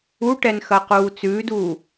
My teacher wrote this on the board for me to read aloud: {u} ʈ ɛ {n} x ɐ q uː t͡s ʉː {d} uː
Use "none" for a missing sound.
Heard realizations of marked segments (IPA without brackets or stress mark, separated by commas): u, n, d